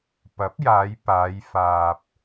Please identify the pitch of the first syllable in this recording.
rising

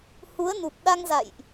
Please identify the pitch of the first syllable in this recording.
rising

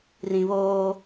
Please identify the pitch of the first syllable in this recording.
low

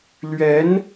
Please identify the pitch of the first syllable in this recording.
rising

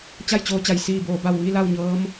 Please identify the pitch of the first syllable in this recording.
falling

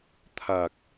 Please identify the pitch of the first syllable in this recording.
low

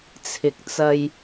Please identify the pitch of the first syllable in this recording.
low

